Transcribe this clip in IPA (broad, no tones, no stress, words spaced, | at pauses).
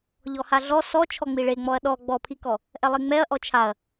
ʎɔhaɮɔ sɔ t͡ʃʰɔŋ͡miɭeŋ͡mɔɐ̯ ɗɔ ɡ͡bɔpʰikɔ | ʔɛlˠeŋ͡mɛɐ̯ ʔɔt͡ʃʰaɐ̯